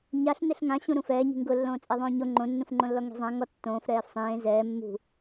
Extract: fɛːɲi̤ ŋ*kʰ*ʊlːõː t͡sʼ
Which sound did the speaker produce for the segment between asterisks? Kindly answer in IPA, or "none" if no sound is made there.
ɡ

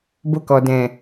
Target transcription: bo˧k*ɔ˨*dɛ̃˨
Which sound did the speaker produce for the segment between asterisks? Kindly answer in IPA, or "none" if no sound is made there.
ɔ˨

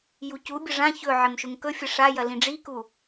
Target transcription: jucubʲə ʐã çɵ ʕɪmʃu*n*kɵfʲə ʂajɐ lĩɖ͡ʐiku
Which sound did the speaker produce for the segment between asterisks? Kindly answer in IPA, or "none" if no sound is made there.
ŋ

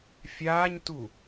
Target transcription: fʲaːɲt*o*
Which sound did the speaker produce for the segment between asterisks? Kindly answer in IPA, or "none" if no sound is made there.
u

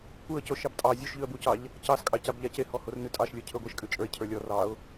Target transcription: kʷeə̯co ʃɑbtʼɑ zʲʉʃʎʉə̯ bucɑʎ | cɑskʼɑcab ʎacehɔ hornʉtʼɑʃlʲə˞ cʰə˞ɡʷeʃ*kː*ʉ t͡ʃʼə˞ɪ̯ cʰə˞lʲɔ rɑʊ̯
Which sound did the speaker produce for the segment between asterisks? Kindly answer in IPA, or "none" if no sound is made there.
kʼ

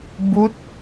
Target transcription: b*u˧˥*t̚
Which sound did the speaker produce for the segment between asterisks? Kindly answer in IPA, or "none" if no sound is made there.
u˧˥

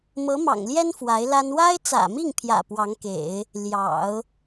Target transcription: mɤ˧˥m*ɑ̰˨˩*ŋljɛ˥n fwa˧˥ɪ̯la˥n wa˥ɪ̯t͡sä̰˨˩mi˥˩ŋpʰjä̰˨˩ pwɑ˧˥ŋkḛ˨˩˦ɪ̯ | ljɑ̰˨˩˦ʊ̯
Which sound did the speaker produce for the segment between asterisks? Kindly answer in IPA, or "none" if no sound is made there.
ɑ̰˨˩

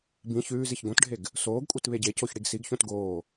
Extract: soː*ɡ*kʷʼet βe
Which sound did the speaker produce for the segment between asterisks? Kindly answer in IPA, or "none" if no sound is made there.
ɡ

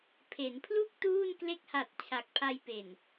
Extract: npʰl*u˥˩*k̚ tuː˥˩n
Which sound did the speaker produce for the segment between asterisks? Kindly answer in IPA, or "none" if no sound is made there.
u˥˩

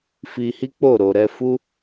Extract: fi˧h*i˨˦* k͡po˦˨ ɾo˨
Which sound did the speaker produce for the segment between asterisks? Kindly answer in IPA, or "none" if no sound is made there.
i˦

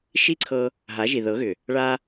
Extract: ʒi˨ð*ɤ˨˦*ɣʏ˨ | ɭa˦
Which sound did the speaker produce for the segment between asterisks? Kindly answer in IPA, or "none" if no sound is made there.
ɤ˨˦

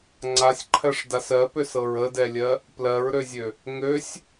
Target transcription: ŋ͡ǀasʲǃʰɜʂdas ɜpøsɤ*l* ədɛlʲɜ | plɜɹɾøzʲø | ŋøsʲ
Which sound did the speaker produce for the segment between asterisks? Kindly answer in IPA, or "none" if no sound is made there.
ɹ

